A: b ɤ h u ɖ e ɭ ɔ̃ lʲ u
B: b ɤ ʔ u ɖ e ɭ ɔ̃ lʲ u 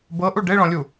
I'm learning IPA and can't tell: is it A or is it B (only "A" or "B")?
B